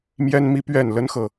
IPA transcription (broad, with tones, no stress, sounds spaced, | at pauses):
m j ɛ˦ n m i˦ p ɥ ɛ˥˨ n l ə˦ n x ɤ˨